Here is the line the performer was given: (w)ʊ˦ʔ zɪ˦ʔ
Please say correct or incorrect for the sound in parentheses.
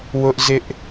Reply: correct